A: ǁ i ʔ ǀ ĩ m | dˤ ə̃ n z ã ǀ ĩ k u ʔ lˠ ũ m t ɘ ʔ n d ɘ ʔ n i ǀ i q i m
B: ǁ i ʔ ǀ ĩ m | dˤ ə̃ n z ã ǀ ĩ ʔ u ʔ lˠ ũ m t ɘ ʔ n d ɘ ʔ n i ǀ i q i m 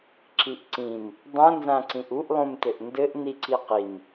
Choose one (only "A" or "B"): B